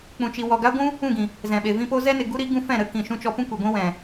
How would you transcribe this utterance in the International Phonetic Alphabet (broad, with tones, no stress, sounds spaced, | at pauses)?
k͡p ũ˨ t͡ʃ i˨ w ɔ˨ ɡ a˦ ɡʷ ũ˦ | ũ˦˨ ɡ ĩ˨ | z ɛ̃˨ ɓ e˨ v ĩ˦ p o˦ z ɛ˦ n e˨ ɡ u˦ ɾ i˨˦ ɡ ũ˦ f ɛ̃˦˨ ɾ ə˧ k ĩ˨ ʃ ũ˧ t͡ʃ ɔ˧ p ũ˦ kʷ e˨ ɡʷ ĩ˦ w ɛ̃˨